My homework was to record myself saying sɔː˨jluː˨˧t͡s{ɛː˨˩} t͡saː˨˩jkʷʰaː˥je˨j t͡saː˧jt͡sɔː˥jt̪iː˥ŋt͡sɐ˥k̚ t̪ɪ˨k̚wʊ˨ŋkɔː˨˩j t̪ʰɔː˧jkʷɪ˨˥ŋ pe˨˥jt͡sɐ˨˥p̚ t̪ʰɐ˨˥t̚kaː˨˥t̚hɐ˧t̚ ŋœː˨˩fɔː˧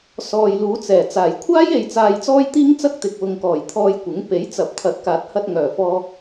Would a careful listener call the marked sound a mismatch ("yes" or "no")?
no